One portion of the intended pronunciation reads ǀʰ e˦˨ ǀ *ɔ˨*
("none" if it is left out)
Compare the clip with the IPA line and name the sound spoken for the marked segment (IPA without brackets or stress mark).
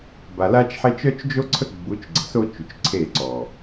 ɔ˨